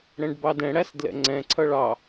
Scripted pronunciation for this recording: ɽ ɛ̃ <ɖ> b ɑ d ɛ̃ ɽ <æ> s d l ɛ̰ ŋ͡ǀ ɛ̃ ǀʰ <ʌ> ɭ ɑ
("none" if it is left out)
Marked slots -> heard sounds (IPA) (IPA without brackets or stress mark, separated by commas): ɖ, æ, ʌ